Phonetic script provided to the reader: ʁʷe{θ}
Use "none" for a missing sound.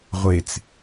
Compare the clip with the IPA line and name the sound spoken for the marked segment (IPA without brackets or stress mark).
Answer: t͡s